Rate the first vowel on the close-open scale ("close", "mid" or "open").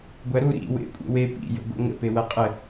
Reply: open